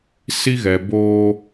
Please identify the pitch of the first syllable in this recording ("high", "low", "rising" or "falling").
high